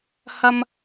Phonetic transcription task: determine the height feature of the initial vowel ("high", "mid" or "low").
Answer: low